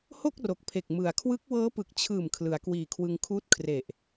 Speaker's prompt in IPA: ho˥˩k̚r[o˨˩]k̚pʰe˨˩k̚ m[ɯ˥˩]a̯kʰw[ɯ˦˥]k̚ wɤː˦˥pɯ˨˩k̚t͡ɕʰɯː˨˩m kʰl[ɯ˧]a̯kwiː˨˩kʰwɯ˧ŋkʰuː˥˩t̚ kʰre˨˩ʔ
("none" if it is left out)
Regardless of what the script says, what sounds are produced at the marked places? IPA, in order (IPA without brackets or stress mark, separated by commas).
o˨˩, ɯ˩˦, ɯ˦˥, ɯ˩˦